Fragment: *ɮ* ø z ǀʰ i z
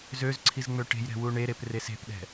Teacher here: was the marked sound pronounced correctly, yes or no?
no